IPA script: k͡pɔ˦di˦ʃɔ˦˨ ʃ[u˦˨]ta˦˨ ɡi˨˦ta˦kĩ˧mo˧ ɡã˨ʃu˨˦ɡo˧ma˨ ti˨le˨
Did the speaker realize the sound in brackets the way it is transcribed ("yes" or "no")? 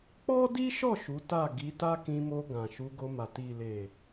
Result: no